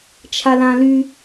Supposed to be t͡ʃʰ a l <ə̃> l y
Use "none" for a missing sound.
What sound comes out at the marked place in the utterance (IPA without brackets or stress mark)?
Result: ã